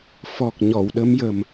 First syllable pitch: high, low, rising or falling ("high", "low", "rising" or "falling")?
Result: low